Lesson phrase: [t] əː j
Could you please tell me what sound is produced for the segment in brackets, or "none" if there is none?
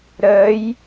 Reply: ɾ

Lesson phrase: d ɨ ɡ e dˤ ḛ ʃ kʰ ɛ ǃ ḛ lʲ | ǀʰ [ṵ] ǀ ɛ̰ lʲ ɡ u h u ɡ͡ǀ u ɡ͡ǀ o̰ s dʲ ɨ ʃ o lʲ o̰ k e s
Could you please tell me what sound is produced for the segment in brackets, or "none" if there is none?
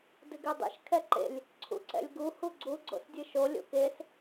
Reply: ṵ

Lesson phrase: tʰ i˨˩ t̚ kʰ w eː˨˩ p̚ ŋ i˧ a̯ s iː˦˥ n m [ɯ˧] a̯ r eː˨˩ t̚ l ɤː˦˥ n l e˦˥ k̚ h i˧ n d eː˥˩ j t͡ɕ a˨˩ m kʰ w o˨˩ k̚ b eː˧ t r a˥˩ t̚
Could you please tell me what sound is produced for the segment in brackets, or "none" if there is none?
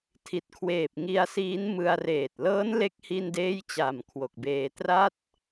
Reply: ɯ˧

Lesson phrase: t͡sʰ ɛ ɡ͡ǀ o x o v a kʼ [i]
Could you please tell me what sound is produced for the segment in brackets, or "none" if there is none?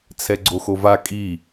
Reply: i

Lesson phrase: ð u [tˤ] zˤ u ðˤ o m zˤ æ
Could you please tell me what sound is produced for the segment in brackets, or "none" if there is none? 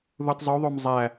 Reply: tˤ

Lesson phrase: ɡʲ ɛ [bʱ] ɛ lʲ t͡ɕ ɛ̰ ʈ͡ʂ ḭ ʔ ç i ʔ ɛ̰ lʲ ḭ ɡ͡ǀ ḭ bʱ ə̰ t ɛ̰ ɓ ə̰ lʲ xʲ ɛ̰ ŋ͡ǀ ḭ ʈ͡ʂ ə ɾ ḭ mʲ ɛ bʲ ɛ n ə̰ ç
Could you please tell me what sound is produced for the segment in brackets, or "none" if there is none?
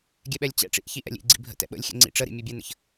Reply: ɓ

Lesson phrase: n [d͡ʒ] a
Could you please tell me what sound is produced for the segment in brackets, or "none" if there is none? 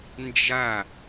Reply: d͡ʒ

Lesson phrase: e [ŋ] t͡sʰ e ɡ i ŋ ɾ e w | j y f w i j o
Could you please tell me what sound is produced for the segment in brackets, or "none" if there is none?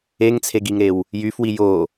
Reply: ŋ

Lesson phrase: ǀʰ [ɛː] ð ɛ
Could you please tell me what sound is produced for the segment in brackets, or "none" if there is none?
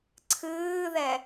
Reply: ɨː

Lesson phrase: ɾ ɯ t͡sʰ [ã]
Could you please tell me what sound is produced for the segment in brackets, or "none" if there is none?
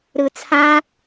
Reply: ã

